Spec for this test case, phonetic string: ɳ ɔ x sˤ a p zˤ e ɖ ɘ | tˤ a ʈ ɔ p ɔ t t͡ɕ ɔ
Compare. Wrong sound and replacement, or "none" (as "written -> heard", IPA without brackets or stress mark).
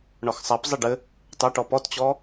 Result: none